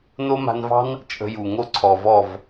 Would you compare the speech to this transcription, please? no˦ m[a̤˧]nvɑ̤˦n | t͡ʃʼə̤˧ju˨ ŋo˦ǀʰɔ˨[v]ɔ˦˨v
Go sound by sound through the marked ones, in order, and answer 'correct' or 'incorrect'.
correct, correct

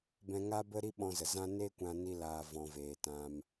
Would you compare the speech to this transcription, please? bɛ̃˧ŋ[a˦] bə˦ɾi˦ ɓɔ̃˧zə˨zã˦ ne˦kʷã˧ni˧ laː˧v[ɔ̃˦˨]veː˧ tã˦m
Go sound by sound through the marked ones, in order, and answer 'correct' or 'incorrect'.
correct, incorrect

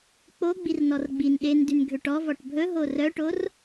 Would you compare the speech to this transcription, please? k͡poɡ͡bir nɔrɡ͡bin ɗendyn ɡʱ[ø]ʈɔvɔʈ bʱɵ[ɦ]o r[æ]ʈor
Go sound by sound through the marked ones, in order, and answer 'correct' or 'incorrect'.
correct, correct, incorrect

